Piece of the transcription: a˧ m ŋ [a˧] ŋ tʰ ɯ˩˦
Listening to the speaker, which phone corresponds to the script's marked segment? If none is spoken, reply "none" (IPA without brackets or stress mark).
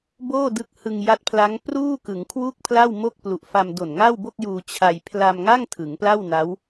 a˥˩